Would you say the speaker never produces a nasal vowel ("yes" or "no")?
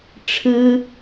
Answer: yes